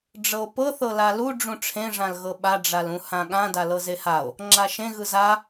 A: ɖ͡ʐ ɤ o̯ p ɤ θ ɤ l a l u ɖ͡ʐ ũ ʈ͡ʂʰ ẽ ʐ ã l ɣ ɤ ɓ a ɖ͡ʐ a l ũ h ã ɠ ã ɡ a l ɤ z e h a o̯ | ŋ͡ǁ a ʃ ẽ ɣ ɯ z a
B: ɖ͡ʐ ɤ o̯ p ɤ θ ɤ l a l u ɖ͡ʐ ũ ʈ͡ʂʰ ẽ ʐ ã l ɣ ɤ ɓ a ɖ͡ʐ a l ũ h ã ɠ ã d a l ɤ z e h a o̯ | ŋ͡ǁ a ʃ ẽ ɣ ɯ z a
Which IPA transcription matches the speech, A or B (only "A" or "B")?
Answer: B